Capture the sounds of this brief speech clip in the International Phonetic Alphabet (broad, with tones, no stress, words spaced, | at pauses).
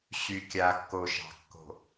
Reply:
ɕy˨kʲa˨kːo˨ʃɑ̤˨ kːo̤˨